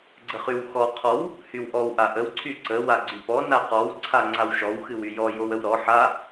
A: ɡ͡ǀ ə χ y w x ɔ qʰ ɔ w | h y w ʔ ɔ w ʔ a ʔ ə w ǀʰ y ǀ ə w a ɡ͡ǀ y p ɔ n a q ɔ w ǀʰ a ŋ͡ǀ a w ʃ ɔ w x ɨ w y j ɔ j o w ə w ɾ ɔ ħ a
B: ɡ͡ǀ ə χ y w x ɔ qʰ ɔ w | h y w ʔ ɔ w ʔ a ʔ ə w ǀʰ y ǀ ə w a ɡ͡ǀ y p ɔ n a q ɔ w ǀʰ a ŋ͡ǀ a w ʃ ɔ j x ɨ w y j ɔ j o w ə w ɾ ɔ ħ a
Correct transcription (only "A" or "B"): A